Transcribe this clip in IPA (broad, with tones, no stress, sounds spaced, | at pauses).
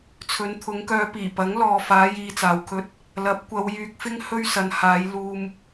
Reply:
t͡sʰ ɵ˨˧ n t̪ʰ ʊ˨˧ ŋ k œː˧ p iː˨˩ p ɐ˨˥ ŋ l ɔː˨ f aː˨˧ j iː˧ t͡s aː˨ w kʰ ɵ˧ t̚ | l ɐ˨˥ p̚ kʷ ɐ˨˧ w j yː˧ k̚ f ɪ˥ ŋ h ɵ˥ ɥ s ɐ˧ n h aː˨˧ j l uː˧ m